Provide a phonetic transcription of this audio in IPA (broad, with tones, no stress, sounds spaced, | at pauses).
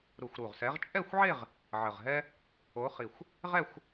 ɾ u˨˩ xʷ ɾ u˨˩ ʁ s ɛ˨˦ ʁ t͡ʃʼ ɛ˥˧ xʷ ʕ e˥˧ ʁ | ʕ ə˨˩ ʁ ɦ ɛ˥ | o˨˦ χ i˨˩ xʷ | ʁ ɛ˥˧ xʷ